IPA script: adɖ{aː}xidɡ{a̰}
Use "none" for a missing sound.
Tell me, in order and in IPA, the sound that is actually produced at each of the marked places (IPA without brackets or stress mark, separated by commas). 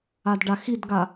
a, a